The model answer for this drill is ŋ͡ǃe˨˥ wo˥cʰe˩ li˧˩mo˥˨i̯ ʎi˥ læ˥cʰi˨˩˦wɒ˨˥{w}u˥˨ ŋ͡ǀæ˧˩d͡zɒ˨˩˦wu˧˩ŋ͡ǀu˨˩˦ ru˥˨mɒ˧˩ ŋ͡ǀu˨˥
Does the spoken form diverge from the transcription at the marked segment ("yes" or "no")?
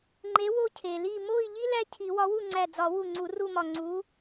no